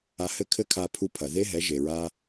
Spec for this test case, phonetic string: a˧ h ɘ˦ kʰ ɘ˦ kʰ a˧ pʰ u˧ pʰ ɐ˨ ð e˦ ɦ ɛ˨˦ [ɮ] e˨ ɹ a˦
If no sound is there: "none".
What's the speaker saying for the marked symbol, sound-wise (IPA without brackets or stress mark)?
ʒ